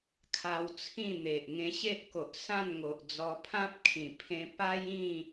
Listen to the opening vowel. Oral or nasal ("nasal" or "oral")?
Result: oral